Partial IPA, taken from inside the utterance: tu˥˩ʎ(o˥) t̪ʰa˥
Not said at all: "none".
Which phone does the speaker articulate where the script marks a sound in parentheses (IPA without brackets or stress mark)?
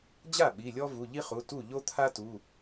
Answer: o˥